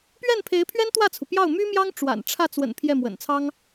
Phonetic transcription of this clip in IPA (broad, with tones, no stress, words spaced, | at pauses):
pɥɛ˥˩npʰe˧˥ɪ̯pʰɥɛ˥n t̪wä˥˩t͡sʰu˩pjɑ˥˩ʊ̯ my˥mjɑ˥ŋ ʈ͡ʂwa̰˨˩nʈ͡ʂʰä˥˩ t͡swə̰˨˩n pʰjɛ˥˩mwə̰˨˩nt͡sʰɑ˥ŋ